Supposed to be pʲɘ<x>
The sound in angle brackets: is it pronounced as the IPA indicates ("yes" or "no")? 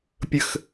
yes